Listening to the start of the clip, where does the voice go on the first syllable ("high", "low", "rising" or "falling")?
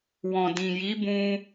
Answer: low